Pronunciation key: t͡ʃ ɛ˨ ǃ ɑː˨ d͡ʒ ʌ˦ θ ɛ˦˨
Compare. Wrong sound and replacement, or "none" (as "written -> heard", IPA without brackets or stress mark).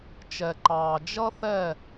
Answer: none